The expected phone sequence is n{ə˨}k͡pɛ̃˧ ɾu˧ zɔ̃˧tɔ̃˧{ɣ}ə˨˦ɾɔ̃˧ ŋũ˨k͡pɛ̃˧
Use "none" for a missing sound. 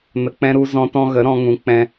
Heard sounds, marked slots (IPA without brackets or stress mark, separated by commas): ə˨, ɣ